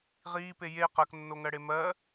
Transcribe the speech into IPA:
ʁ iː p e j e q ɜ k nː o ŋ ɜ ɽ e m ɜ

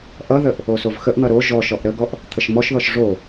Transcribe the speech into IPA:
ʔ ʌ ð ə ʔ | o s o v x ə ʔ n̪ ʌ ɾ o ʒ ɔ ʃ ɔ ʔ ɾ ə ɡ ɔ ʔ | t̪ʰ ə ʃ m ɔ ʃ ð ɔ ʃ ʐ o

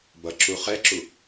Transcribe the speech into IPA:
b ʌ ǁ u χ ɛ ǁ u

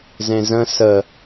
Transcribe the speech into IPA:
z ẽ z ə̃ s ə

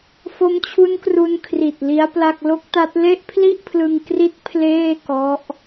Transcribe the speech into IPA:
f o˦˥ m t͡ɕʰ u˦˥ n k r u˧ n kʰ r i˨˩ t̚ l i˦˥ a̯ p l a˥˩ k̚ l o˦˥ k̚ t a˦˥ t̚ l e˥˩ ʔ pʰ l i˥˩ ʔ pʰ l ɯ˧ ŋ k r i˦˥ t̚ pʰ l eː˥˩ k ɔ˦˥ ʔ

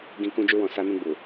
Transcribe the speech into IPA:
ɡ ĩ˧ k ũ˧ d͡ʒ u˧ w ɔ̃˨ s a˧ n ũ˧ ɡ͡b u˨

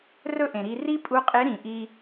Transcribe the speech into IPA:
r ɵ˥ ʔ ẽ˩ ɾ i˧ r i˥ pʼ u˧˥ qʼ e˧˥ ɾ ĩ˩ ʔ i˧

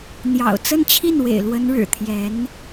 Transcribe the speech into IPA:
n̪ j ɑ̰˨˩ ʊ̯ t͡s ə˥˧ n t͡ɕʰ i˥˩ n w ḛ˨˩ ɪ̯ l w ə˧˥ n ɻ ɻ̩˨˩ t̪ʰ j ɛ˧˥ n

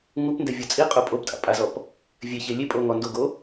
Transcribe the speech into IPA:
ŋ u p n d ɛ vʲ ɔ t͡sʼ i qʼ o pʼ o p tʼ a̰ pʼ a z ɔ p | vʲ ɛ ç e lʲ e pʼ o ŋ ɔ n d o ɡ o

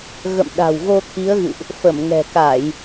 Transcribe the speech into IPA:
ɣ ə̰˧˨ m ɗ a̤˨˩ w ɣ o˧ t̪ʰ i˨˦ ə̯ ɣ ɨ̰˧˨ ʔ | f ə˧˩ m ŋ ɛ̤˨˩ k a˧˩˨ j

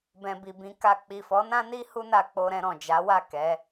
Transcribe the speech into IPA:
b ɛ̃˨ b i˨ b ĩ˨˦ k a˧ k͡p i˨ f ɔ˨˦ n ã˦ n i˦ h u˦ n a˧ k͡p o˧ ɾ ɛ̃˧ ɾ ɔ̃˨ d͡ʒ a˨˦ w a˦˨ k ɛ˨˦

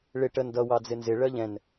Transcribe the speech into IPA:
ɭ ɪ ʈ ə n d ʌ w ɑ d͡z ɪ n z ɪ ɭ ɜ ʎ ɛ̃ n

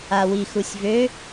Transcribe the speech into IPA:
a w i x u sʲ v ø

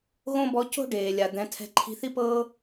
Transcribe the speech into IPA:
ɣ õ˥ b ɔ˧˥ c o̤˥ ɖ eː˩ lʲ a˩ d̪ ɛ̃˩˧ tʰ ɛ̤˧ ǃʰ i̤˧ θ i˥ p ɤː˥

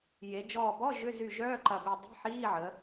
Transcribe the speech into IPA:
j e˩˧ d͡ʒ ɔː˧˩ b ɔ˧˥˧ ʒ ʏ˧˥˧ z y˧˩ ʒ œː˧˥˧ ǃ ɐ˧˩ b i˧˩ dˤ i̤˧˥˧ ħ iː˧˥˧ ʕ ə˩˧

